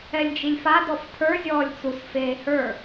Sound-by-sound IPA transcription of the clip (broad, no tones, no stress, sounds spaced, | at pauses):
ɛ lʲ d͡ʒ i lʲ f a d ɔ f tʰ ə˞ zʲ ɔː lʲ t͡s u s f eː h ə˞